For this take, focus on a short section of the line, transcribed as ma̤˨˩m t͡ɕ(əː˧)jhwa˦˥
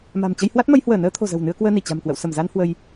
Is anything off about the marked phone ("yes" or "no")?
yes